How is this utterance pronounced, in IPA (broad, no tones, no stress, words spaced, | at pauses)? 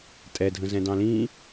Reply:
tʼɛdʱə̃zɛ̃ dɑ̃lĩ